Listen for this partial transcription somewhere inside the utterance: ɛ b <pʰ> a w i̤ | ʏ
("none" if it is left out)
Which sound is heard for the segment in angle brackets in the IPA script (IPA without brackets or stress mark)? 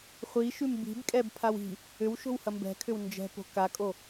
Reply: pʰ